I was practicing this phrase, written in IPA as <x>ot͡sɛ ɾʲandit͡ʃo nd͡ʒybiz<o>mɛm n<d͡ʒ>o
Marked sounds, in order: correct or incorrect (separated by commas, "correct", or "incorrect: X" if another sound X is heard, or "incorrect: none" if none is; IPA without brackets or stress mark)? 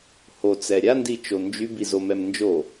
incorrect: h, correct, correct